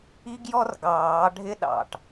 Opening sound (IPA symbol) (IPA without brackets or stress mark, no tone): i